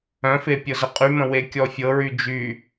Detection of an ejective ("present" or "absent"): present